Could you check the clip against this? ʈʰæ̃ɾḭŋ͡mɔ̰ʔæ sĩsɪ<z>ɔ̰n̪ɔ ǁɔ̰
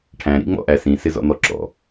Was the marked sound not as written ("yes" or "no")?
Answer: no